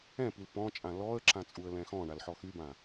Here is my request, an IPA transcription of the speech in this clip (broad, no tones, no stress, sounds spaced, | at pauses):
ɛ̃ p i l p ɔ̃ t͡ʃʼ ã l ɔ ə̯ ǁ ã t͡sʼ u ə̯ l ɛ̃ x ɔ̃ ɳ a l ħ ɔ x y b ã